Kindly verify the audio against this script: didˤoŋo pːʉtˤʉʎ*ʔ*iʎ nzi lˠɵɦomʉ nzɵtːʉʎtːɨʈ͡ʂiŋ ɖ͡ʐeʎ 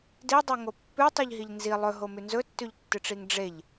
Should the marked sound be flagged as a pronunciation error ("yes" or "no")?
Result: yes